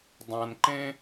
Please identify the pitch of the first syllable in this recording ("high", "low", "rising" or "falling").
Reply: low